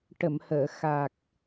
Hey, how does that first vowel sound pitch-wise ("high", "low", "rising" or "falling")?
low